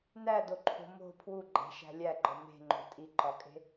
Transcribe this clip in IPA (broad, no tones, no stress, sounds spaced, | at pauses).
n æ d o ǃʰ o̤ m o̤ pʰ w u ɡ͡ǃ æ̤ ʃ æ̤ lʲ æ ɡ͡ǃ ɒ m e̤ ŋ͡ǃ o̤ tʼ i ǃ ɒ kʼ e̤